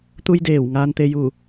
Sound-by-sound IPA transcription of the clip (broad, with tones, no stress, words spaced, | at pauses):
t̪u˧j deː˧˩wŋaː˧nt̪e˧ju˧˩